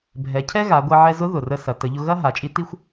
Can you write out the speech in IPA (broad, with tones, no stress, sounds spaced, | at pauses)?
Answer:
bʱ ɛ˩˧ cʰ ɛ˥ ɣ a˩˧ ɡʷ ɐ˧ ʕ ɛ˧ z ʊ˧˥ ð ʊ˩ r ə˧ s ɐ˩˧ t ə˩˧ ʎ ʊ˧ ɣ ɐ˥ ɦ a˩˧ t͡ʃʼ i˧˥ t i˥ xʷ